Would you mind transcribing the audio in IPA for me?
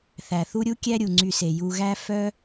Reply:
θæ˩θu˦ɾʲu˥ kʲæ˥ɾʲu˩ŋ͡ǀy˨se˩ ju˨ɣæ˦ fœ˦

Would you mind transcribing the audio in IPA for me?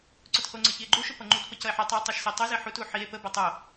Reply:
ǀʊthoŋ͡ǀʌ çie̯ɡ͡ǃuʃʊ pʌŋ͡ǃutpə cʌe̯ħitˤie̯ tˤoʃsitˤəze ħutu ħie̯ pəbʌ tˤo

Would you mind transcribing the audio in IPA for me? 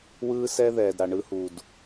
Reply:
wɯː˦sɛ˦ ðɛː˨dɾa˨ ɳɯ˦hu˨d

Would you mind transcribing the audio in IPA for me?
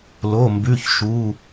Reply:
lo˩˧˩ mbʉ˩˧˩çʃu˩˧˩

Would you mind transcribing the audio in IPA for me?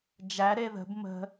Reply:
d͡ʒæ ɾeðə̤b mə̤

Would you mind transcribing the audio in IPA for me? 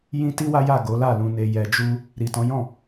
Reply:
jĩ˦ ti˦wa˦ja˦˨ ɡo˨˦la˦˨lũ˧ne˧ jɛ˧d͡ʒu˦ | ɾi˨tɔ̃˨˦jɔ̃˦˨

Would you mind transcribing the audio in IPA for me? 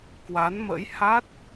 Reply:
kwa˨˦nmə̰˧˥j ha˦˥t̚

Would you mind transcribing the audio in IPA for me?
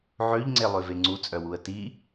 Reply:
ʕøʎŋ͡ǀelˠøve ŋ͡ǀut͡sʼœwuə̯ ti

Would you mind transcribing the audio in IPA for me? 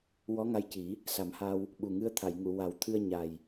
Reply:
wɔ˧˥ŋa˧jci˨˩˦ | sa˨˩˦mha˧w | ɓu˨˩ŋɨ˧˥ə̯ t̪ʰa˨˩˨jŋu˨˩˨wa˨˩˦w t̪ʰɨ˧ə̯ ɲa˨˩j

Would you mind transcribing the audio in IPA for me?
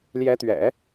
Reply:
ljɛ˧˥t̪ɥɛ̰˨˩˦

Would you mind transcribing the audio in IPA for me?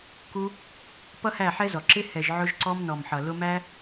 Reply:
ku˧ | pʌ˦hæ˦˨ħɛ˦zɔ˨ ǁɪ˧ hɛ˨ʒ ʕʊ˧ʒǀɔ˧mnɔ˨mħʌ˨ lʊ˧mæ˦

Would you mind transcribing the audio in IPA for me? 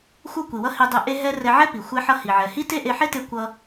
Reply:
xʷʌ˥kʷi˩wʌ˥ hi˧dˤe˧ ʔe˥ɦɛ˥ rɛ˧ʕɛ˥pi˩ xʷɛ˧ħʌ˧ hi˩ʕɛ˩hi˥ te˥ʔe˧ħe˥te˧ kʷʌ˧

